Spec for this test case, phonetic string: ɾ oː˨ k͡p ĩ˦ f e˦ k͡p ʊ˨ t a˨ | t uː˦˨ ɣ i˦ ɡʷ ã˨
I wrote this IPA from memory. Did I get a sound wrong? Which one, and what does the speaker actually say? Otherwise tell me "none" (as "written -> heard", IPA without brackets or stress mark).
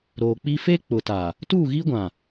ĩ˦ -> i˦